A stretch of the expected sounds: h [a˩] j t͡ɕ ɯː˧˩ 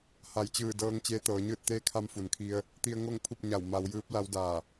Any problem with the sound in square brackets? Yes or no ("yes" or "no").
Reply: no